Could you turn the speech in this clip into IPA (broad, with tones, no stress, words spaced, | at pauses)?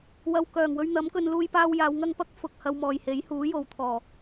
wɐ˨w kœː˨˩ŋwɵ˧ɥ n̪ɐ˨˥mkɵ˧n luː˧jpaː˧wjaː˨˧w ŋɐ˧ŋpɐ˥k̚ fʊ˨k̚ hɐ˧wmɔː˨jhe˨˥j huː˨˥jo˨˧wt̪ʰɔː˨